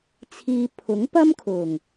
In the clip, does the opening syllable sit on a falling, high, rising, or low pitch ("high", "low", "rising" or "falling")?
low